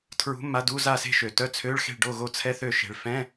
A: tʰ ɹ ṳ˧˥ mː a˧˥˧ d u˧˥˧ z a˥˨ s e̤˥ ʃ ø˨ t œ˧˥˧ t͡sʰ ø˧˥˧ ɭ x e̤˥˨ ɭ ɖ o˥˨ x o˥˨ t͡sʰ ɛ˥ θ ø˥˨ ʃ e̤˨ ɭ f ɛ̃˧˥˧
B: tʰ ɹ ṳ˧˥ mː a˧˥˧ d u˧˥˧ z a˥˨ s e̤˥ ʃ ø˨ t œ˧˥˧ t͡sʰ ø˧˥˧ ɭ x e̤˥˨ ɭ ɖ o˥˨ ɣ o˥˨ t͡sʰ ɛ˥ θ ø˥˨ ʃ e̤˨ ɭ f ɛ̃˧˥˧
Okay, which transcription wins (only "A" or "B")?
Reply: B